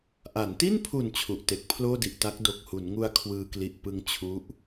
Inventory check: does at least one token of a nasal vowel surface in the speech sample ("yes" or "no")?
no